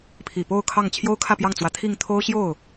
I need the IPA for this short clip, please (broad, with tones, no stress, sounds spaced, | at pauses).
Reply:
pʰ i˨˩ p o˥˧ ʊ̯ kʰ ɑ˥˩ ŋ t͡ɕʰ j o˥ ʊ̯ kʰ ä˥˧ p j ɑ˥˩ ŋ t͡s w ä˧˥ t̪ʰ i˥˩ ŋ t̪ʰ o˥ ʊ̯ ɕ j o˥˩ ʊ̯